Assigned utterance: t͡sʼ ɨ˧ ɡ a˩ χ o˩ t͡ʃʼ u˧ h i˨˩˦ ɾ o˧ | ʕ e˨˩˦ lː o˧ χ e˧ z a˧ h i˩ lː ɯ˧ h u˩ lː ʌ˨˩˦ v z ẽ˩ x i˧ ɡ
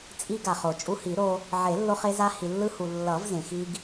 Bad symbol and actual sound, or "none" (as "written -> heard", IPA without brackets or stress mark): ɨ˧ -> i˧